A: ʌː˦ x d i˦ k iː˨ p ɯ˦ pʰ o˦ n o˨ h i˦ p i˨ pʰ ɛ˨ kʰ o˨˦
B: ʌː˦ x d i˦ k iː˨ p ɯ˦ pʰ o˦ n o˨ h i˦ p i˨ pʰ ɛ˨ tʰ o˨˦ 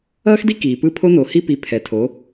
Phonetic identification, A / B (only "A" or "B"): B